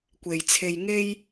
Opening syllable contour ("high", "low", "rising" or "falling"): low